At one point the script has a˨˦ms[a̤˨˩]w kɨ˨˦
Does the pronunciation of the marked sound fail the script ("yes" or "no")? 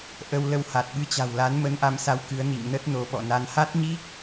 yes